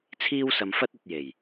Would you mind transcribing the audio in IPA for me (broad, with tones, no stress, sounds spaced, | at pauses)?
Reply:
t͡sʰ iː˥ w s ɐ˧ m f ɐ˥ t̚ ɵ˧ t̚ j e˨˩ j